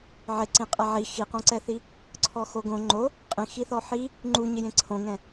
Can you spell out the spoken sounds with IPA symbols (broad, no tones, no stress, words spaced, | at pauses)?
ʕɪǀĩ qʼɛʕi xiqõǀɛθi | ǀʰɔxoɡõ ŋ͡ǃo | qʼĩxiθɔ ħi | ŋ͡ǃuɲɪjẽ ǀʰõŋɛ̃